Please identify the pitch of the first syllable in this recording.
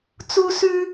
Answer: high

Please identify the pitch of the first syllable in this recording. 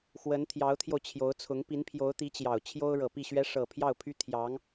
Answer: rising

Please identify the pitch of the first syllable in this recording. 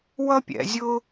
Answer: high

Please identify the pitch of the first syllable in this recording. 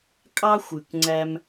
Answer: high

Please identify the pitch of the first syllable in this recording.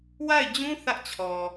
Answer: falling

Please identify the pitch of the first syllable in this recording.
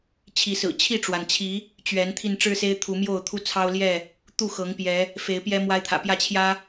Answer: rising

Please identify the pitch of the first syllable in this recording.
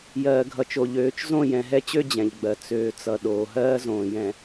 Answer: low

